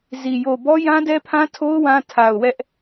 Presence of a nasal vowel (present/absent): present